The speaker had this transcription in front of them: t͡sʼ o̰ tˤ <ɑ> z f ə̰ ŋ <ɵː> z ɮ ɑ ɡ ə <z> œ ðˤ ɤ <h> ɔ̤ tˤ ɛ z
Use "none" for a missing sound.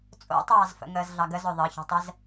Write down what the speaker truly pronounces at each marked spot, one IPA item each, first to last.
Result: ɑː, əː, z, ç

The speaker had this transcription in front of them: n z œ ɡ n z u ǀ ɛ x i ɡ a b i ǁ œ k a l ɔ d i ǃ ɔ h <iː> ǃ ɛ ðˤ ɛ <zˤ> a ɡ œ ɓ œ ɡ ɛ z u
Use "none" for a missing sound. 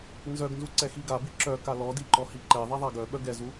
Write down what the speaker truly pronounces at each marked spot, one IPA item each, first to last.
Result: i, ðˤ

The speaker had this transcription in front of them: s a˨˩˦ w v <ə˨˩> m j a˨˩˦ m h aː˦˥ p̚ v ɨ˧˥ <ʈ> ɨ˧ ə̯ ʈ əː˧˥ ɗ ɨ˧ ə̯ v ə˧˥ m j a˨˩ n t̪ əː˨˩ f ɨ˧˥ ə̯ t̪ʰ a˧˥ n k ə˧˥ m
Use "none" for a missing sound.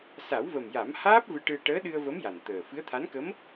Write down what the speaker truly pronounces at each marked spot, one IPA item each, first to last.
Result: ə˨˩, ʈ

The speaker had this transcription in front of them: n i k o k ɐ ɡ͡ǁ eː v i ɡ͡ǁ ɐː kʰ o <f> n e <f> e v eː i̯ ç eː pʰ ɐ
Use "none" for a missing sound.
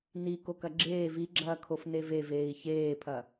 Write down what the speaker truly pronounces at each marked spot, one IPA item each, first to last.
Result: f, v

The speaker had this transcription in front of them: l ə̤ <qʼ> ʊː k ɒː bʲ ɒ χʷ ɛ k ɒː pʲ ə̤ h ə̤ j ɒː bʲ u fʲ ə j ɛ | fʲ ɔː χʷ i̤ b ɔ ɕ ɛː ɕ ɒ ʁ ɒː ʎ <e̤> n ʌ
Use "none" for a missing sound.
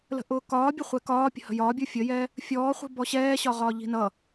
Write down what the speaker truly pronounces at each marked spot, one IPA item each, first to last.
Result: ʔ, i̤

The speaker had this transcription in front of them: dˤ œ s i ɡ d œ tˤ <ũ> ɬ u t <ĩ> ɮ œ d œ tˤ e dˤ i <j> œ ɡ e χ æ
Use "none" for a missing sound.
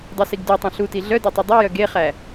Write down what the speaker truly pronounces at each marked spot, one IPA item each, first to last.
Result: õ, i, j

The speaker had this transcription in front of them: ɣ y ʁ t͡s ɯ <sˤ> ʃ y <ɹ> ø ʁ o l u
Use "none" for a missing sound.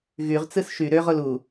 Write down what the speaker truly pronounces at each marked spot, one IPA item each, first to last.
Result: s, ɾ

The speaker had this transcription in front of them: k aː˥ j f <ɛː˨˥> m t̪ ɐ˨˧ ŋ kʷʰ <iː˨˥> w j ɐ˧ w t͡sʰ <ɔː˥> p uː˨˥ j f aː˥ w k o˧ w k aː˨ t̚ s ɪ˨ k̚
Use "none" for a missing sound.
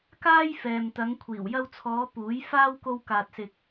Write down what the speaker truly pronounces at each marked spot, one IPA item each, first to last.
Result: ɛː˨, iː˨˩, ɔː˨˧

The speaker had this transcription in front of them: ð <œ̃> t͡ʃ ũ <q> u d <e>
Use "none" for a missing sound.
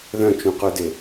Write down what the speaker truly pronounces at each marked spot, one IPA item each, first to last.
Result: œ̃, q, e

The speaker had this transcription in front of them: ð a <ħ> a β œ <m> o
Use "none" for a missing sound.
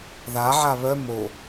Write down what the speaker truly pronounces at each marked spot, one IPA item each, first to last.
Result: ʕ, m

